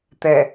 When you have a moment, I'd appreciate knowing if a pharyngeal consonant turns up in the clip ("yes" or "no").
no